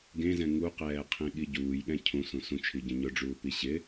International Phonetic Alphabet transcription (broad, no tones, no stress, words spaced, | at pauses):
ɡẽzɛ̃ ŋuqɛːqʰĩɠi ɟuːjɠɛ̃ cʰũsũ sũt͡ʃʰiɟɛ̃ ɲʊɖ͡ʐuːpi ɕɪ